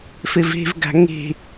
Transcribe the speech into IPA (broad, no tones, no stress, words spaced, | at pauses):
fivi̤vɡæ̤ ŋi̤